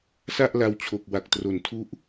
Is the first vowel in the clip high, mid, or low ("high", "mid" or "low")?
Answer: low